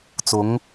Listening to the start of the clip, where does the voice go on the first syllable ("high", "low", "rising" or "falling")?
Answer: rising